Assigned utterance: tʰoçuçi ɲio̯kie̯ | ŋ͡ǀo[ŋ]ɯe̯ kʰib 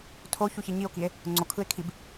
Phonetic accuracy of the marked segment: incorrect: kʰ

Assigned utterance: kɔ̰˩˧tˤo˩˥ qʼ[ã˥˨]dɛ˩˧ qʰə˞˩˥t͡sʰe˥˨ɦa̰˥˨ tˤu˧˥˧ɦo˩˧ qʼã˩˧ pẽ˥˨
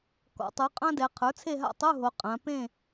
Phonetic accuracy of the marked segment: incorrect: ã˥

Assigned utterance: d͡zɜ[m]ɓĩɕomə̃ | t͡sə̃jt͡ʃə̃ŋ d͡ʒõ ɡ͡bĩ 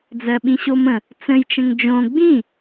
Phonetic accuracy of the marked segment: incorrect: none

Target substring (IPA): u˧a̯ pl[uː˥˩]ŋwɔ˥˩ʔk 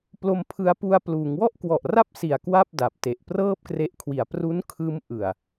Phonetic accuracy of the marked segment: incorrect: uː˩˦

